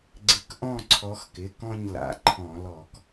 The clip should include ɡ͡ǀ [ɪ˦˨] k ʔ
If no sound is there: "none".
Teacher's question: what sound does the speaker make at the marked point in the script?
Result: ɪ˨˦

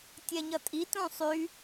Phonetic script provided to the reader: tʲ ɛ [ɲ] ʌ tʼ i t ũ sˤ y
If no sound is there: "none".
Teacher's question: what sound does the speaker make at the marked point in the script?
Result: ɲ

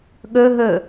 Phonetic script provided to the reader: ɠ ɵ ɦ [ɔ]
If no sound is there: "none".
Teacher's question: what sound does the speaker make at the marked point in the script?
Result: ɵ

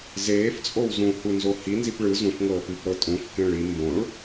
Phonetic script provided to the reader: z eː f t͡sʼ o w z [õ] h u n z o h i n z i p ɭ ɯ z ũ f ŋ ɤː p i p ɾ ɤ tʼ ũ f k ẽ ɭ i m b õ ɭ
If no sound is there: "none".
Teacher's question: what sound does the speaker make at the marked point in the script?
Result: ũ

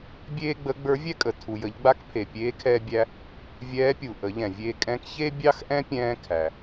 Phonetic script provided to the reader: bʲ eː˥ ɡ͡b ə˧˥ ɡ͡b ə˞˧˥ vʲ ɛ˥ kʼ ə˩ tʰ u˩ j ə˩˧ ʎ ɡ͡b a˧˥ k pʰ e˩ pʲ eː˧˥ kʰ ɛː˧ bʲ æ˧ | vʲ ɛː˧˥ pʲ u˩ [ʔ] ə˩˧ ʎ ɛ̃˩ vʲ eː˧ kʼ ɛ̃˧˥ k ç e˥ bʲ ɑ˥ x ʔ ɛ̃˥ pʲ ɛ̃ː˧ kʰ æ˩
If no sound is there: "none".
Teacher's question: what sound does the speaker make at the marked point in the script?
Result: ʔ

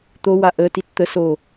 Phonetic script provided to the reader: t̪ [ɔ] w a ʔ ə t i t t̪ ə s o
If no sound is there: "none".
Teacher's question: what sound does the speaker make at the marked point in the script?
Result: o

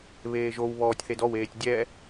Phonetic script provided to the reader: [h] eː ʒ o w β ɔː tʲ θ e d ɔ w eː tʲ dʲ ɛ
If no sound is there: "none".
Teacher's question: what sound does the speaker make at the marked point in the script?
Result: β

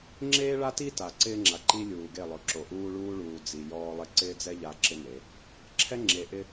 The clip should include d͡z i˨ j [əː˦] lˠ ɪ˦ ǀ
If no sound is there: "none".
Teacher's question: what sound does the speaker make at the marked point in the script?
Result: ɔː˦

